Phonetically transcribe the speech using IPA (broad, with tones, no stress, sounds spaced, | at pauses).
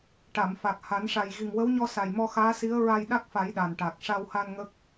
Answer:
ʈ a˨˩˨ m f a˨˩ k̚ h a˨˩˦ n ʂ a˨˩ j ɣ i˨˩ ŋ w ə˧˥ w ɲ ɔ˧ s a˨˩ j m ɔ˧ x aː˧˥ s i˧˥ ə̯ ɹ a˧ j ɗ a˦˥ k̚ f a˨˩˦ j ɗ a˨˩ n ʈ a˨˩ k̚ ʂ a˧ w h a˧ n ŋ ə˦˥ k̚